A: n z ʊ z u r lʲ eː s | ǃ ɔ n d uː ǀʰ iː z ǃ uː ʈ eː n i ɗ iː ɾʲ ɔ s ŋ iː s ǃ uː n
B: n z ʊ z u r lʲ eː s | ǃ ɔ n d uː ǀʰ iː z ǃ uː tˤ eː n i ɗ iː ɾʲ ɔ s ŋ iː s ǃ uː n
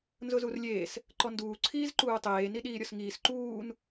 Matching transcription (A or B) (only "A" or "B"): B